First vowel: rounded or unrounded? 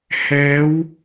unrounded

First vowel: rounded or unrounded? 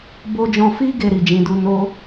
rounded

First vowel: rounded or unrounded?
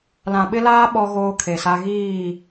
unrounded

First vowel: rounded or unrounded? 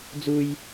rounded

